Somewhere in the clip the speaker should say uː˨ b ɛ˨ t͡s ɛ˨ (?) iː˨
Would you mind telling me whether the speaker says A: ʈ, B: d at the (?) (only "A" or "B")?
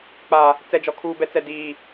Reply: B